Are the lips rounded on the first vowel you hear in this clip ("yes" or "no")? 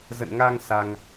no